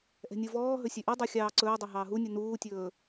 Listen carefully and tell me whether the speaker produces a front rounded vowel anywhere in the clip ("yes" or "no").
yes